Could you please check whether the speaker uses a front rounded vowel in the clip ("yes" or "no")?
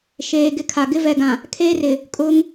no